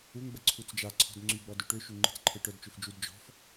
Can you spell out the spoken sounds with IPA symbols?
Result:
u ŋ ɡ͡b ə ǀʰ u t͡s d͡ʒ a ǀʰ ɔ̤ d ŋ͡ǀ y ɡ͡b ɔ d ø ʈ ø ʃ y ŋ͡ǃ i̤ t͡s ǃʰ e ʈ œ d t͡ʃ ø f d͡ʒ u d d͡ʒ ɔ̤ f

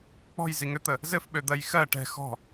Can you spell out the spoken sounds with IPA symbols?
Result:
k͡p ɔ̤ j z i ŋ ø t̪ ə | z ɘ f ɓ ø d̪ ɜ j x ɜ ʈ ɛ̤ x ɔ̤

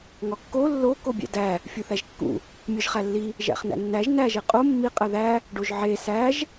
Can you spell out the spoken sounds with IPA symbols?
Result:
ŋ ɒ kː o lː o k o bʲ æ̰ d æ | fʲ u θ æ ʒ kː ṵ | mʲ ɒ ʒ χ æ lː i | ʒ æ̰ χ n æ̰ nː æ ʒ n æ ʒ e qʼ o mː i qʼ æ ð æ | ɖ o ʒ ʕ e s æ ʒ

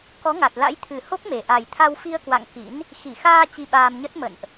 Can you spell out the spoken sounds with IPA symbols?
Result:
k ɔ˨˦ ŋ a˨˩ t̚ l a̰˧˥ j t̪ʰ ɨ˨˩ h o˦˥ k̚ m e˨˩ ʔ a˨˩ j t̪ʰ a˧ w f i˧ ə̯ k w a̰˧˨ ŋ k ḭ˧˥ n | x i˧˩ x aː˧ t͡ɕ i˧ ɓ aː˧ m ɲ ə˦˥ t̚ m ə̰˧˨ n ʔ

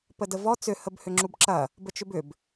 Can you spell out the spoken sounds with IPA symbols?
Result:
p ə d ə v ɔ t͡s ʏ h ə b h ʏ ŋ͡ǁ u b ǁ ɐ | b ə t͡ʃ ʏ b ʏ b

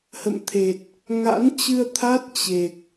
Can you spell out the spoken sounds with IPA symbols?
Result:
h ə̰˧˨ m t̪ʰ e˨˩ t̚ | ŋ a̰˧˥ n t͡ɕ ɨ˧ ə̯ t̪ʰ a˦˥ t̚ t͡ɕ e˨˩ k̚

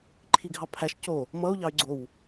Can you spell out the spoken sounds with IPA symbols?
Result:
ǃʰ i ɡʱ ɑ pʰ æ ʃ c o | m ʌ u̯ ʎ ɑ y̯ ɡ͡ǀ o w

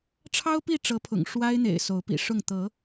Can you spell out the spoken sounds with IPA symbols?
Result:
ʈ͡ʂʰ ɑ˦ ʊ̯ p i˥˨ ʈ͡ʂ ɤ˨˦ pʰ ʊ̰˨˩ ŋ ʂ w a˦ ɪ̯ n̪ ḛ˨˩ ɪ̯ s o˨˦ ʊ̯ p ḭ˨˩ ʂ ʊ˥˨ ŋ t̪ ɤ˨˦

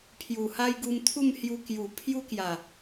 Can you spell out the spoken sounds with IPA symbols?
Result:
pʰ j u˨˩ h a˦ j ɡ u˧ m t̪ʰ u˥˧ m h j u˧ k j u˨˩ pʰ j u˦ k j a˨˩

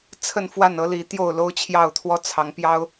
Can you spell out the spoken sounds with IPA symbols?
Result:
t͡sʰ ə˥˨ n f w a˥˨ n ɤ˦ l i˨˦ t̪ j o˥˨ ʊ̯ l o˦ ʊ̯ t͡ɕʰ j ɑ˥˨ ʊ̯ t̪ʰ w ɔ˦ t͡sʰ ɑ˨˦ ŋ p j ɑ˦ ʊ̯

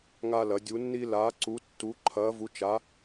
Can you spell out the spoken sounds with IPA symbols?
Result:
ŋ a˧ l ɐ˩˧ dʲ u˩˧ nː i˧ l aː˩˧ ǀ u˩˧ tː u˩˧ ǃʰ ɐː˩˧ v u˩˧ t͡ʃ a˩˧

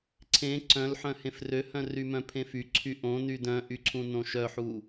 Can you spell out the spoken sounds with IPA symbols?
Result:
ǀʰ ẽ ǀ œ̃ l ħ œ̃ h ẽ f r ø h œ̃ r y m œ̃ pʰ ẽ f y ǀʰ y ʔ õ n y d œ̃ ʔ y ǀʰ ũ n õ ʃ œ ħ u

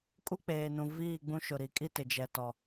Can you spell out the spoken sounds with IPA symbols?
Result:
kʼ u˦ k͡p eː˨ n ũ˨ v iː˦˨ ɡ͡b ũ˦ ʃ ʊ˨ ɾ i˨ kʼ i˦ t ɪ˨ d͡ʒ ɛ˨ t ɔ˨

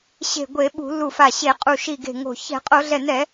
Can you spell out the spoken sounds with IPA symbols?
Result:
ɕ e̤˧˩ ɡʷ e˧˩˧ ɓ ṳ˧˩˧ l u˧˩ f a˧˩ ɕ e˧˩˧ qʼ u˧˩ ʃ i˧˩ ɡ e̤˧˩ ŋ o̤˧˩ ç ɛ̤˧˩˧ qʼ o˧˩˧ ɮ ɛ˧˩ n ɛ˧˩˧

